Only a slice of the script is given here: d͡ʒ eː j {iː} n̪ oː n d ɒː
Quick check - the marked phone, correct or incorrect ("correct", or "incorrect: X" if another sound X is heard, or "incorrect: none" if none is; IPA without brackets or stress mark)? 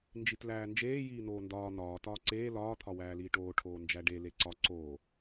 correct